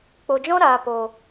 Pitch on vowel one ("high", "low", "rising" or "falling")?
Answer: low